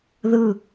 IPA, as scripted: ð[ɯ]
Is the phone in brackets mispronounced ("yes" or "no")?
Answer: no